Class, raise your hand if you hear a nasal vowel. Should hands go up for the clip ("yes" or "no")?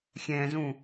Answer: yes